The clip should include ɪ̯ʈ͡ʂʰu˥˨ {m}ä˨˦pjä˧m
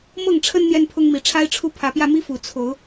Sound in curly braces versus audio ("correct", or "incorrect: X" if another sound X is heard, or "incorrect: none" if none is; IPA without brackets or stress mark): incorrect: pʰ